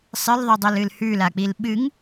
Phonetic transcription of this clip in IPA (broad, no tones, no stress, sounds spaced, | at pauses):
sˤ ɨ l ðˤ ʉ dˤ o l ɨ l h ʉ l a k͡p i l ɓ ɨ ŋ